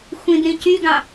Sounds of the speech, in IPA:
xʷ ĩ d ɾ ĩ c y ɡ ɑ̃

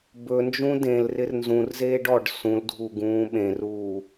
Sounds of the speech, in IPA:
b ɵ n d͡ʒ ũ d ẽ l r ɪ r n z ũ r z eː ɖ ɔ ɖ s ũ l dʱ u ɡ ũː ɓ ẽ r uː

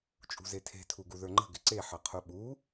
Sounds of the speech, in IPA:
t͡ʃʼ ṳ z e tʰ e̤ tʰ u ɡ u ð ə˞ ŋ͡ǃ ə̤ ɡ ɪ ǀ e ħ ɐ qʰ u ɓ u

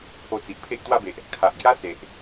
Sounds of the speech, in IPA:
pʰ o˧ t͡s i˨ ʔ pʰ e˦ ʔ t̪ w a˥˧ b e˨ ʔ | kʰ a˨ ʔ ɡ j a˦ s e˨ ʔ

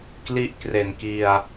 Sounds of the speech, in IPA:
k l i˦˥ ʔ k r e˨˩ n k i˧ a̯

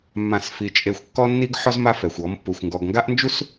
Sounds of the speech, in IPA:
mː ã˦˨ s f i˧ t͡ʃʼ e˦ xʷ kː ɔ˦ nː i˦ ɡ ħ ɔ˦ z m a˦ f ɛ˨ xʷ ɔ˨˦ m pː u˨ xʷ ŋ ɡ ɔ˨ ɡ ŋ ɡ a˦ ʔ n d͡ʒ u˦ s

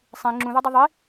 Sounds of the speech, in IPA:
sˤ ĩ ŋ͡ǁ ũ ð o dˤ u ðˤ i

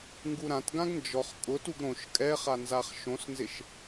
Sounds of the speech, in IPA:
ŋ ɡ u ɾ ã t ɡ ã ɡ n d͡ʒ ɔ χ kʼ ʊ t u ɡ ɾ õ ʃ kʼ ɛ χ a n z a χ ʃ õ s n z ɪ ʃ

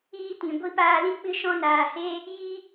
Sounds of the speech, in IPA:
iː˧ t ĩ˨ ɡʷ i˧ p aː˧ l ĩ˦ k͡p ɨ˦ ʃ ɔ̃˦ n aː˧ h e˦ | j i˦

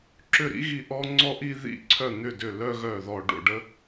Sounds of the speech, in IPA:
ǁ ʏ˦˨ ɾ ḭ˥ ɣ i˦˨ ʔ ɔ˥ ŋ͡ǀ ɔ˥ ʔ i˥ ð ḭ˦˨ ǀʰ œ˦˨ n̪ ʏ˦˨ d ʏ˦˨ l œ˥ ɣ œ˦˨ ð ɔ˦˨ ɖ o̰˦˨ ɖ ə˥

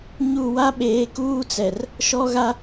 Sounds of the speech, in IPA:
ɲ u˦˨ w a˦ ɓ eː˨˦ k uː˦ t͡s ɛ˨ r | ʃ ɔ˦ ɣ a˦

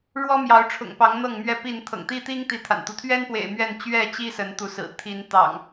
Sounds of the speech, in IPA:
ɻ w ɔ˦ m j ɑ˨˦ ʊ̯ ʈ͡ʂʰ ʊ̰˨˩ ŋ p ɑ˨˦ ŋ n̪ ɤ˥˨ ŋ m ɥ ɛ˥˨ p i˥˨ n t̪ʰ ɤ̰˨˩ ŋ t̪ i˦ t̪ i˦ ŋ t̪ i˨˦ t̪ʰ a̰˨˩ n t̪ u˦ t̪ʰ ɥ ɛ˦ n p w ḛ˨˩ ɪ̯ m ɥ ɛ˥˨ n t͡ɕ ɥ ɛ˥˨ t͡ɕ i˦ s ə˨˦ n t̪ u˨˦ s ɹ̩˨˩ t̪ʰ i˨˦ n t̪ ɑ̰˨˩ ŋ

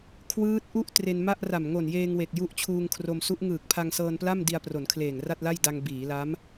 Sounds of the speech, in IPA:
kʰ w ɯː˦˥ t̚ ʔ u˥˩ ʔ t r e˧ n m a˥˩ ʔ r a˨˩ m ŋ o˨˩ n j eː˧ ŋ w e˨˩ k̚ j u˦˥ ʔ t͡ɕʰ uː˧ ŋ kʰ r o˧ m s u˦˥ ʔ ŋ ɯː˨˩ k̚ pʰ a˧ ŋ s ɤː˧ n p l a˥˩ m d i˧ a̯ p r o˩˦ n kʰ l eː˨˩ ŋ r a˥˩ t̚ l a˥˩ j d a˧ ŋ b iː˩˦ l a˦˥ m

